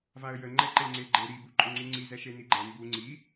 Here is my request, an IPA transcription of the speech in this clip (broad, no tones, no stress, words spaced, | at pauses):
vaə̯jəŋ͡ǃɛǃe ŋ͡ǀeɡ͡ǃe ɾibuǃʼʊ ŋ͡ǀuŋ͡ǀi zɛʃeniɡ͡ǃɛ mbu ŋ͡ǀi